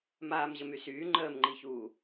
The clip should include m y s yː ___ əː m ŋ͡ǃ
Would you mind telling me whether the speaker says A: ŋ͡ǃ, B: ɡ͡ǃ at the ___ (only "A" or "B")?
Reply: A